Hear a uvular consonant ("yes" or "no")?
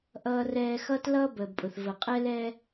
yes